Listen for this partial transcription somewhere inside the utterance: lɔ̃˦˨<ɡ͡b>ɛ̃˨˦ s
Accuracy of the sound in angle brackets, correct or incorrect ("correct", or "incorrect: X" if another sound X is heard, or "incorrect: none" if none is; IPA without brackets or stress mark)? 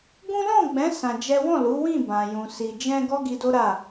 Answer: correct